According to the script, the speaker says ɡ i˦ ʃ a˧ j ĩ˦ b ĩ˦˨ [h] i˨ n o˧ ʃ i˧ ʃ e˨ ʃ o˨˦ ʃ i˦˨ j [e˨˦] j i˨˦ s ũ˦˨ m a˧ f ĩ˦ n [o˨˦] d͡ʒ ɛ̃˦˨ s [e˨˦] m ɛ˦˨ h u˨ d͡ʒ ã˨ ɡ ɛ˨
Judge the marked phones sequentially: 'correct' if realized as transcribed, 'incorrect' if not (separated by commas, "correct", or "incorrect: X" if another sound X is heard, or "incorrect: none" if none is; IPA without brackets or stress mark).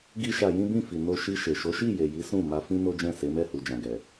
incorrect: f, incorrect: e˨, incorrect: o˦, correct